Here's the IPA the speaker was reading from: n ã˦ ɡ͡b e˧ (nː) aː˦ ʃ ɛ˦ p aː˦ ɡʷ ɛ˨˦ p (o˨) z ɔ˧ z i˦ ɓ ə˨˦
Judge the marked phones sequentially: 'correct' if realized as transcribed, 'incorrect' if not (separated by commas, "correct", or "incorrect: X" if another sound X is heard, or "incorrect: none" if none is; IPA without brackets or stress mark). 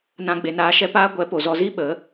incorrect: n, correct